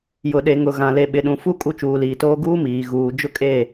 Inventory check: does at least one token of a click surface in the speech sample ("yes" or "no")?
no